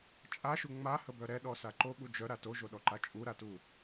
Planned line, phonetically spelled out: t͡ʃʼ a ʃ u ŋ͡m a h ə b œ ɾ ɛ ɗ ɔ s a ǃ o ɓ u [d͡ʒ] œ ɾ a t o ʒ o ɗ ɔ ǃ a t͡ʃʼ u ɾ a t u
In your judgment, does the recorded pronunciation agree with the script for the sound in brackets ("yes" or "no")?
yes